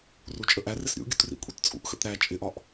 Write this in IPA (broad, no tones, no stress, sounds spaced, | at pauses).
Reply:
r u t͡ʃʼ ə ʔ æ r ɪ s ɾʲ ṵ ɡʲ ṵ t r ḭ kʷʼ i t t͡sʼ ṵ ʔ x ə̰ t ɾ æ t͡ʃʼ ɪ ʔ ɒ ʔ